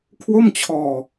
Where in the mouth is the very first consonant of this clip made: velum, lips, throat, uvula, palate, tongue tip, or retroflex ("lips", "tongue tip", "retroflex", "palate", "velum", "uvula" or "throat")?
velum